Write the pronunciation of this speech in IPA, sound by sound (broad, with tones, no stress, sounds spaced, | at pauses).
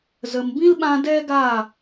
z ə˨ m b ĩ˦ l ɓ ã˧ d ɛ˦ ɡ a˦˨